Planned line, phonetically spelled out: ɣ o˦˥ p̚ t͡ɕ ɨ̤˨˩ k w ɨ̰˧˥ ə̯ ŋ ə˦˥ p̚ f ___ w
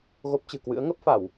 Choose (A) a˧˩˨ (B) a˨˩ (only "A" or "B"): A